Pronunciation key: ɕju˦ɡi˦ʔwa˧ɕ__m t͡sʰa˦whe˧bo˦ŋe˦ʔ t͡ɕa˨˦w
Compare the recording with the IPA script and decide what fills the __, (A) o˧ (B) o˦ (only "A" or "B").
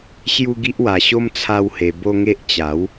B